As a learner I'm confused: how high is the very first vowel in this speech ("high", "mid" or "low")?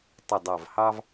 high